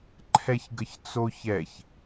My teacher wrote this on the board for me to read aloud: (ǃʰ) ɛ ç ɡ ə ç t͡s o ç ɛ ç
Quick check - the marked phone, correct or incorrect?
correct